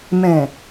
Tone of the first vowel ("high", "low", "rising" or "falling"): low